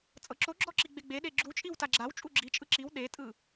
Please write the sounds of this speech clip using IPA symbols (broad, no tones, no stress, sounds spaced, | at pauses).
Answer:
t͡sʼ ɤ ǁ o ɡ͡ǁ ɔ ǁ i ɡ͡b e ɡ͡b e ɗ e ɡ͡ǁ u t͡ʃʼ i w t a ɡ͡ǁ a w t͡ʃʼ u ɡ͡ǁ i t͡ʃʼ ɯ ǁ i w ɗ e tʼ ɯ